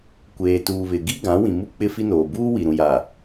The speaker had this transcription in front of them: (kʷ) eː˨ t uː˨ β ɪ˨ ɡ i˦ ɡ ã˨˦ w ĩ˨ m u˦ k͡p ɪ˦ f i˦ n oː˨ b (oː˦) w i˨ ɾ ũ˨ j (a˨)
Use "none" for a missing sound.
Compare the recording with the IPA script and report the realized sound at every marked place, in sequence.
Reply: kʷ, uː˦, a˨

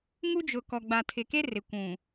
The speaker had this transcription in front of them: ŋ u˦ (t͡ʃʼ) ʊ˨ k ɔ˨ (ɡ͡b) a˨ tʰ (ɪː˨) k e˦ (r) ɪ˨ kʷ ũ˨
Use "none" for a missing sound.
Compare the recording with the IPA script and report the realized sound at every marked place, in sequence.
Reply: d͡ʒ, ɡ͡b, ɪ˨, r

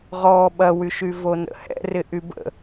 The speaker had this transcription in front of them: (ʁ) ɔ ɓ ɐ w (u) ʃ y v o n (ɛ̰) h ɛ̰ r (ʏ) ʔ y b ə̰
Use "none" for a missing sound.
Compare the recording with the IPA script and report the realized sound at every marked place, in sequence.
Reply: ʁ, y, ə̰, ɪ

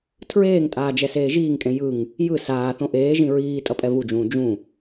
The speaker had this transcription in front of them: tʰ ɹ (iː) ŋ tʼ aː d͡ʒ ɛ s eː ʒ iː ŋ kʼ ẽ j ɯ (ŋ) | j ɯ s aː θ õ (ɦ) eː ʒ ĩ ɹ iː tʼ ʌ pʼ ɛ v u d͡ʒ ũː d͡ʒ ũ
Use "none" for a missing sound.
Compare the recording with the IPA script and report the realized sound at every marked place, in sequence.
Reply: eː, ŋ, ʔ

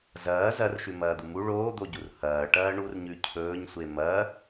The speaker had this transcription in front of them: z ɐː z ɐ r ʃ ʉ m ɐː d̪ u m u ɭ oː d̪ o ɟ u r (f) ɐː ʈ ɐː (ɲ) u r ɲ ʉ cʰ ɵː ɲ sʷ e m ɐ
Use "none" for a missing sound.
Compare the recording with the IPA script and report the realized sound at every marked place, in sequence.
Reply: h, ɳ

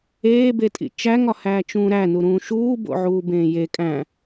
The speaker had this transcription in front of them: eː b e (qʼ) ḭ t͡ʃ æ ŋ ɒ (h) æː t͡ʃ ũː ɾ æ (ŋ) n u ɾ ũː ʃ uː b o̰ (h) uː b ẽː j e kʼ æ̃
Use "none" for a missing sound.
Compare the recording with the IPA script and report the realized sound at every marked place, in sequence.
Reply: tʼ, h, none, ʕ

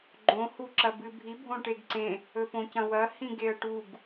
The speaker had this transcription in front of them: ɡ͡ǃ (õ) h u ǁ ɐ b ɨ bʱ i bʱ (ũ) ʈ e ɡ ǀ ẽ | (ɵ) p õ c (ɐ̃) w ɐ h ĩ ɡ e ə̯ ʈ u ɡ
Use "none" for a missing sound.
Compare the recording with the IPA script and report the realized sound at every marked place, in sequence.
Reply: õ, õ, ɵ, ɐ̃

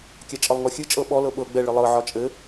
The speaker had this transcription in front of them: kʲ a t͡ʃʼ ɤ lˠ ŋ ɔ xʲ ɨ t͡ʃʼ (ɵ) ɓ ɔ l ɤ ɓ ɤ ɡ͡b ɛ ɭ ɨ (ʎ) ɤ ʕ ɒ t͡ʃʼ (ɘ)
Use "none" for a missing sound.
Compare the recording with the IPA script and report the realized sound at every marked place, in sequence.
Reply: ɤ, lˠ, ɘ

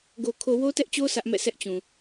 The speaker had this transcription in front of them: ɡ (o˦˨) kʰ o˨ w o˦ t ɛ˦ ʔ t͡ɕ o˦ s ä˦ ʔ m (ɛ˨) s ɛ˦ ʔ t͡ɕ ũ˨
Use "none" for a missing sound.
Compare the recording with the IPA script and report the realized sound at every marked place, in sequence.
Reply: o˨, ɛ̰˦˨

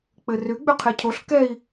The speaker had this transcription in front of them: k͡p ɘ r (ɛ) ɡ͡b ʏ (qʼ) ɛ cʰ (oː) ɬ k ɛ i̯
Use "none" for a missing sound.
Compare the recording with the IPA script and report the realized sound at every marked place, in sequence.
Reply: ʏ, qʰ, o

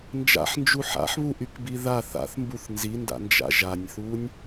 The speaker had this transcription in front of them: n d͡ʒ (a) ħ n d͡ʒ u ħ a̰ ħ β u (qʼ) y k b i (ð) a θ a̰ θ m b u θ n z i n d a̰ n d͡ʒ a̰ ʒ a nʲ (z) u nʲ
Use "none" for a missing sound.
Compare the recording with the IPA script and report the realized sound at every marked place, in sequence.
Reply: a̰, ʔ, ð, θ

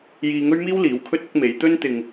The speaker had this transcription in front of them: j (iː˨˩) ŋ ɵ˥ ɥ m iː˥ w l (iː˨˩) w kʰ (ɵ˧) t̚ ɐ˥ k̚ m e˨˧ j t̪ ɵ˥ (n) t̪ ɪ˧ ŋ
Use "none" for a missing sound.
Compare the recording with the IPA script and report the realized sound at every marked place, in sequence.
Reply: iː˧, iː˨˥, ɵ˥, n

